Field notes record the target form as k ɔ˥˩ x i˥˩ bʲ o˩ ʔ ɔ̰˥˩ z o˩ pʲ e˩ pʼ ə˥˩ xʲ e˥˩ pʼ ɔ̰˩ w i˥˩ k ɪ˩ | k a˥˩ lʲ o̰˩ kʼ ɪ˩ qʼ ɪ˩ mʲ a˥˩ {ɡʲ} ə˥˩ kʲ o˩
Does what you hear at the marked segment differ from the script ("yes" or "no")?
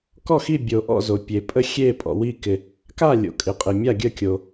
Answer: no